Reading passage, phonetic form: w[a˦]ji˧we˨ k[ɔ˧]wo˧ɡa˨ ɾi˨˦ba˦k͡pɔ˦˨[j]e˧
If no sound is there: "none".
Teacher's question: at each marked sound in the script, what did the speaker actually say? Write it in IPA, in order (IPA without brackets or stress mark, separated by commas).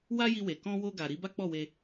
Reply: a˦, ɔ̃˧, w